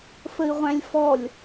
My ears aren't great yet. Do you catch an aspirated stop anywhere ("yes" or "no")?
no